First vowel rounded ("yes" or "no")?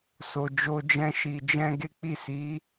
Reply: yes